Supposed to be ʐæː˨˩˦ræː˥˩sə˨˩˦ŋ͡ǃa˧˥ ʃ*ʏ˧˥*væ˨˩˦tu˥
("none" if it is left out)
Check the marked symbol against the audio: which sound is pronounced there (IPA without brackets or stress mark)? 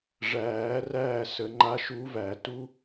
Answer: u˧˥